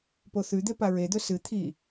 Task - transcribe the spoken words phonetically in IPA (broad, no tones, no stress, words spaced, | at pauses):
poθʉd̪e paɹed̪ɵ sɨ t̪ʰi